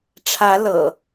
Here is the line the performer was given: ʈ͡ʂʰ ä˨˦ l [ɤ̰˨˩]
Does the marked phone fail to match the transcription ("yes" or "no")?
no